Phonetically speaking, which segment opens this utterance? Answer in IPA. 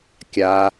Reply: kʲ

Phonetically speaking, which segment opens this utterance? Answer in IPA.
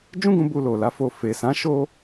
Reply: d͡ʒ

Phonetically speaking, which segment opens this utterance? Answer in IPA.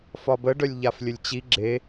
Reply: f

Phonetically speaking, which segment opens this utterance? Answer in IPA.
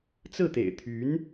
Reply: t͡s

